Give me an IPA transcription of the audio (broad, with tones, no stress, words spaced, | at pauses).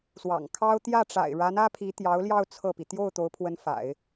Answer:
swɑ̰˨˩ŋkʰɑ˥ʊ̯ t̪jä˥˩ʈ͡ʂa̰˨˩ɪ̯ɻa˧˥n ä˥pʰi˧˥ t̪jɑ˧˥ʊ̯ljɑ˥˧ʊ̯ t͡sʰɤ˥˩pi˩ t̪jo˥˩ʊ̯ t̪o˧˥ʊ̯pʰwə˧˥nfa̰˨˩˦ɪ̯